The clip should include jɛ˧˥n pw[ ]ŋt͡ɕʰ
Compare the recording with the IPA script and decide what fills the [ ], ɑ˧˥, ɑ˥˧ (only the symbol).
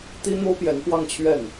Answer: ɑ˥˧